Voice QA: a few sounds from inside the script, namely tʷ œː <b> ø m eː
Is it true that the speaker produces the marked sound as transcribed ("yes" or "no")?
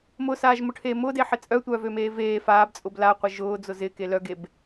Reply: no